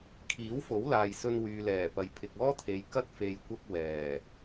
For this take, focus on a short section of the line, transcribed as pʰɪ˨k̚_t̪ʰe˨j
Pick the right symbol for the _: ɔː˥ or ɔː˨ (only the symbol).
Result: ɔː˥